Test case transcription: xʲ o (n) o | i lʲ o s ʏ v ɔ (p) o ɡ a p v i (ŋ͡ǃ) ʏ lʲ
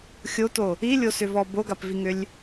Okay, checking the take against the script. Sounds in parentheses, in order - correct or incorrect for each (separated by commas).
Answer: incorrect, incorrect, incorrect